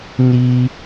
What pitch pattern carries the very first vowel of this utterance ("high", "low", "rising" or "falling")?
high